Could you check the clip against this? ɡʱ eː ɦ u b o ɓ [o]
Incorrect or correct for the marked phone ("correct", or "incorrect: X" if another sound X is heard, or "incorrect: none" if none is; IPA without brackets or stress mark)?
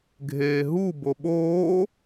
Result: incorrect: oː